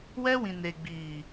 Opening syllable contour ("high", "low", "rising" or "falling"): high